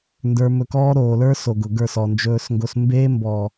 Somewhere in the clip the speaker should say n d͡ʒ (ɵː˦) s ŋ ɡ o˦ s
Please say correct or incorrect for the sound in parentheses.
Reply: correct